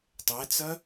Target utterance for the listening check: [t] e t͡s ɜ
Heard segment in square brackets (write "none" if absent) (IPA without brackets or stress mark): tˤ